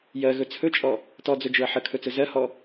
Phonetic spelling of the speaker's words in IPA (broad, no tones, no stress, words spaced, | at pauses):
jɜɣɵ t͡sʰɵt͡ʃʼɔ | tɔd͡zɵd͡ʒʊɐ̯ ħəkʰɵt͡sɵ zɜhɔ